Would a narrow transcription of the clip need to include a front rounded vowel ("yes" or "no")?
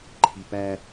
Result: no